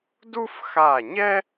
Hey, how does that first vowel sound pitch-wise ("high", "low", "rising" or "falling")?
high